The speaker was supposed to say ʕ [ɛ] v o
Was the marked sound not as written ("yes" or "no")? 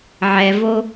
no